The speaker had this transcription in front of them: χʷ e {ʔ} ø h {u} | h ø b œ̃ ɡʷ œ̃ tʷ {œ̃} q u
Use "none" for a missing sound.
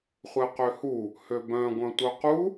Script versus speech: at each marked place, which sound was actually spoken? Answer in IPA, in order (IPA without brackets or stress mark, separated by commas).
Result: q, u, œ